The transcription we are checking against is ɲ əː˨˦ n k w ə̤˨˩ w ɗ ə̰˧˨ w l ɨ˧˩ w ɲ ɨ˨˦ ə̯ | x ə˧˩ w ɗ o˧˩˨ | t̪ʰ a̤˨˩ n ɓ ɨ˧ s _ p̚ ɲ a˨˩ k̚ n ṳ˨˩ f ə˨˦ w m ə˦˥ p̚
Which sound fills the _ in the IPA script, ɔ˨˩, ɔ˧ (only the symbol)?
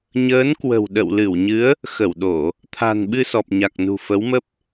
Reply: ɔ˨˩